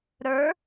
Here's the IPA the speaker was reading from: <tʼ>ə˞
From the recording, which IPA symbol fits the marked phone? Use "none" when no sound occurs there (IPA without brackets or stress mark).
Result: ɾ